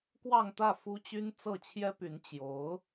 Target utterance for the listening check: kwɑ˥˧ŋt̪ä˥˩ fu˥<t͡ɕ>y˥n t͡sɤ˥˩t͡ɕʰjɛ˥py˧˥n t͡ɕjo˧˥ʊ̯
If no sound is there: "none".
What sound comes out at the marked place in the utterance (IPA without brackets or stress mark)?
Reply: t͡ɕ